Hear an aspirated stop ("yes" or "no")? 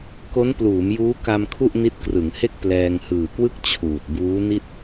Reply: yes